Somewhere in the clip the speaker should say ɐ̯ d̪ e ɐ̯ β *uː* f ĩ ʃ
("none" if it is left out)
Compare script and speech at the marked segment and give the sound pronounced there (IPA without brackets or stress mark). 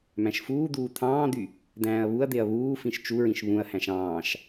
uː